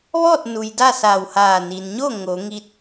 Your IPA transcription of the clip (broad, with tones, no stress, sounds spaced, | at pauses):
ʋ ɔː˥˨ t̚ n u˩ j d a˥˨ s aː˧˩ w h aː˧˩ n i˩ n ɲ o˥˨ ŋ o˩˧ ŋ i˧ t̚